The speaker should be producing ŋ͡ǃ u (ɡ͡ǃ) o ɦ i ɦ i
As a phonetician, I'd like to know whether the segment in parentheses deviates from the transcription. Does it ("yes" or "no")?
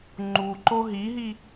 yes